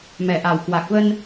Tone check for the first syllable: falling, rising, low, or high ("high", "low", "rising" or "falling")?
low